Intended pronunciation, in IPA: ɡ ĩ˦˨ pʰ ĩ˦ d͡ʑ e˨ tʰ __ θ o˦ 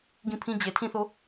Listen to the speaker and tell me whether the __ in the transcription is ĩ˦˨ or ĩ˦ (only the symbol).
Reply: ĩ˦˨